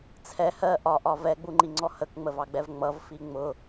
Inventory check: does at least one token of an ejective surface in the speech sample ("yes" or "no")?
no